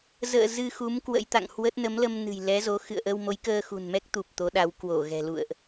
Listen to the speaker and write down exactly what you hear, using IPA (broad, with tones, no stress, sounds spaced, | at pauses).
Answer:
z ə̰ː˧˨ z ɨ˧ x u˨˦ m k w ə̰˧˥ j t̪ a̰˧˨ ŋ h w ə˦˥ t̚ n ə˨˦ m l ə˧ m n ɨ̤˨˩ j l ɛ˨˦ z o˨˦ x ɨ̰˧˨ ə̯ ʔ ə˧ w m o˨˦ j k əː˧ x ṳ˨˩ n m ɛ˦˥ k̚ t̪ u˨˩ p̚ t̪ o˨˦ ɗ a˨˦ w k w o˧˩ ɣ ɛ̤˨˩ l ṵ˧˨ ə̯ ʔ